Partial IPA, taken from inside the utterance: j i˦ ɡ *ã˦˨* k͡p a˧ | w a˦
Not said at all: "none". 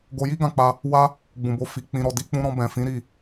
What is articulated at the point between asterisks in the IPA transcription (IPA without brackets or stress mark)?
ã˦˨